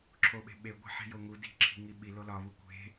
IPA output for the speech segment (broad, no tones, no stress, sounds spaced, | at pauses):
ǁʰ o ɓ e̤ ɓ e ɡʷ e̤ ħ i̤ j o ŋ u d i̤ ǁʰ i̤ ŋ i ɓ i l o l ɒ β u kʷ e̤